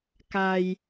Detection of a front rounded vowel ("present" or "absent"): absent